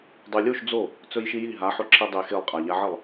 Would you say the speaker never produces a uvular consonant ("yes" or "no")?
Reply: no